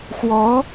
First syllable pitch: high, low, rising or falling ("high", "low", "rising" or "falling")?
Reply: rising